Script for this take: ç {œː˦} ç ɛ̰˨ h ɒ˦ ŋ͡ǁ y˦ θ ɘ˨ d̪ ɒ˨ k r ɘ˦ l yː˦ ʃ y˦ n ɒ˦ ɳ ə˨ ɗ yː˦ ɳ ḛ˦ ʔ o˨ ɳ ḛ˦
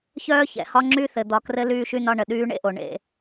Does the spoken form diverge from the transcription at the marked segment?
no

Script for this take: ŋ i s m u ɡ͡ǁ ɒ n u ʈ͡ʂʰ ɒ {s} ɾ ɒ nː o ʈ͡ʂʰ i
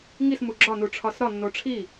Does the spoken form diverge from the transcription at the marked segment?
no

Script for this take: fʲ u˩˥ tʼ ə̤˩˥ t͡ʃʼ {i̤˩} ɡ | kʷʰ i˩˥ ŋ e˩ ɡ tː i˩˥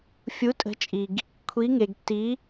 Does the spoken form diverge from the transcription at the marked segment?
yes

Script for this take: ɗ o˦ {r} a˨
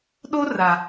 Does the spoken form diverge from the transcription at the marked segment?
no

